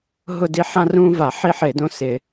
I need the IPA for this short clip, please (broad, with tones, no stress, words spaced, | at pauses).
ɦʊ˥˨di˦ ħã˦rũː˦va˧˩˧ ħi˦ ħɪː˧˩˧dõ˦sɪ˧˩˧